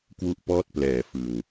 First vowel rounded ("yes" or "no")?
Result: yes